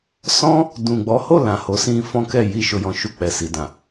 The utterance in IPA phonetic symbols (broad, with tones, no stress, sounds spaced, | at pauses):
s ɔ̃˦ | d ũ˨ ɡ͡b ɔ˨˦ h o˦˨ l ã˨ h o˨˦ s ĩ˧ f ɔ̃˦ k ɛ˦˨ j i˧ ʃ o˨ j ɔ̃˨ ʃ u˨ k͡p ɛ˨ s i˨ d ã˨